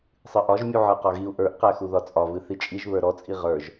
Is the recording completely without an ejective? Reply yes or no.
no